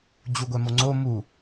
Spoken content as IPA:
d͡ʑ u ɡʷ ɛ m o ŋ͡ǀ o m u

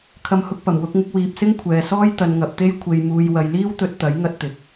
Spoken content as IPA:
kʰ ɐ˨˥ m h ʊ˨ k̚ p ɐ˨˩ m w ʊ˧ k̚ ŋ ɪ˧ k̚ w iː˨ p̚ s ɪ˥ ŋ kʷʰ ɛː˨ s ɔː˥ j t̪ ɐ˨˧ n ŋ ɐ˨ p̚ t̪ e˥ j kʷʰ e˧ j m uː˧ j w ɐ˧ j l iː˥ w t̪ ɵ˧ t̚ t̪ ɐ˨˥ j ŋ ɐ˥ t̚ t̪ ɪ˨˥ k̚

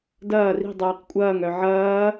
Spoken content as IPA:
d ɐː r i̤ dˤ œː q kʷʼ ɐː ŋ œ ʕ ɐː

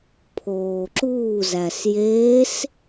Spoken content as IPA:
pʰ oː ǁ uː z æ s j eː s

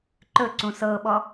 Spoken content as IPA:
ǃ ɵ ǀ ũ s ɤ ɓ ɔ

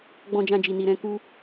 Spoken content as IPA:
ɡ͡b ɔ̃˧ d͡ʒ ã˧ d͡ʒ i˨ n i˨ ɾ ɛ̃˧ k u˦

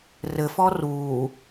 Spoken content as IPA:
r ɘ f ɔ r uː

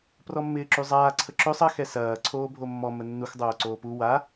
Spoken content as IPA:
p r ɔ mː ɪː ǁ y zˤ aː ǀʰ ə ǁ ø sˤ ɐ x ɛ s ɐː ǀʰ oː bʱ o mː ɔ m ə nː u x dˤ oː ǀ oː p u w a

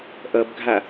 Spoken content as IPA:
ʔ ʌ b ɡʱ a

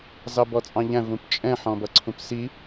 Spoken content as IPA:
z ɑ b ɔ t͡sʼ ɑ̃ ʎ æ̃ v ũ p t͡ʃʼ ɛ̃ ħ ɔ̃ b ʌ ǀʰ ũ p s i

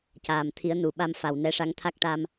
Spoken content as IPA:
c aː˨˩ m t̪ʰ i˨˩˦ ə̯ n u˨˩˨ ɓ a˧ m f a˨˩ w n ɛ˧˥ ʂ a˧˥ ŋ t̪ʰ a˦˥ k̚ ʈ a˧ m

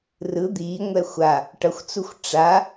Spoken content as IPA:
r ɯ d̪ iː ŋʷ ɛ xʷ a | ʈ ʌ xʷ t͡s u xʷ ʈ͡ʂ a

